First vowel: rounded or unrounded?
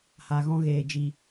unrounded